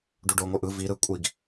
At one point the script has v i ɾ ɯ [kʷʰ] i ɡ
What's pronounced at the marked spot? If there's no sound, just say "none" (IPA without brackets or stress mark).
kʷʼ